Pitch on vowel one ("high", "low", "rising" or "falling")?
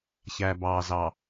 low